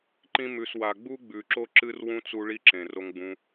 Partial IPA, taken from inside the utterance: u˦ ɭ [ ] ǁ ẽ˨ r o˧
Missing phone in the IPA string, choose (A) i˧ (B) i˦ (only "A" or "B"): B